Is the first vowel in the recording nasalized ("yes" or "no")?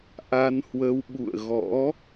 no